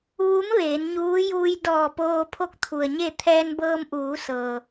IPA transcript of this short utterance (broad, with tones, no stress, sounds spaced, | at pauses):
ʋ u˧˥ m ʋ eː˩˧ n ɲ uː˧˥ j uː˧ j d ɔː˧˩ p oː˧ pʰ o˥˨ k̚ t̪ʰ u˩ ə̯ ɲ e˥˨ t̪ʰ ɛː˧ n b ɤː˧ m ʔ uː˩˧ s ɤː˩